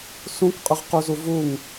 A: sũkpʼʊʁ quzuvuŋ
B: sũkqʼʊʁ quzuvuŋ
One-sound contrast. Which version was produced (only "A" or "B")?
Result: B